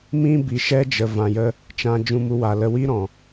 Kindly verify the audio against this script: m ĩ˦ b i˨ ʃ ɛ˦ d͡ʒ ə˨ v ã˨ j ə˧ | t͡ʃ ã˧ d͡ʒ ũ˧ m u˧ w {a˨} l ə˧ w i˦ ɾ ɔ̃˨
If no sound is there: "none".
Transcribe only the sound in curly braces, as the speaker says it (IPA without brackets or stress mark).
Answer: a˨